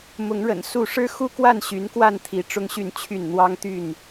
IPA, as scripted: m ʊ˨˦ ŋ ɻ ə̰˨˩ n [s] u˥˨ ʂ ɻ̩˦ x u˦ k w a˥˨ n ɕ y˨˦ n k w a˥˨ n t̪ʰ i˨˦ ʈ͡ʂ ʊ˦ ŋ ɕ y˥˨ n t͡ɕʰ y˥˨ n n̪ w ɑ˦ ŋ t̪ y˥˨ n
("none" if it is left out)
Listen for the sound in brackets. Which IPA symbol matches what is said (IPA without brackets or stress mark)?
s